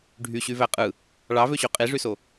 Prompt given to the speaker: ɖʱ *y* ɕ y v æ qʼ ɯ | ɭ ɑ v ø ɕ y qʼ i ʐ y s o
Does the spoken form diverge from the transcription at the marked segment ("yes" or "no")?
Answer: no